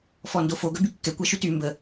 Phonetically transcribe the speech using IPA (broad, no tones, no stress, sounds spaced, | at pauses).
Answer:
f ɔ n d o f o ɡ œ b y kː ɛ kʷ a ʃ y t y m b ə